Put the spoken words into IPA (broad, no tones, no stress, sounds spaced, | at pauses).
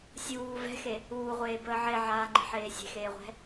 sʲ uː v ɛ̤ x e | uː ʁʷ eː b əː ʕ e ʕ aː ŋ͡ǃ e̤ ħ eː sʲ e̤ x eː ʁʷ ɛ̤